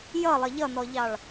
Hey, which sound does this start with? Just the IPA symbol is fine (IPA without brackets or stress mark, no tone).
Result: j